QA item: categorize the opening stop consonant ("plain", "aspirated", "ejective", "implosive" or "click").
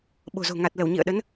implosive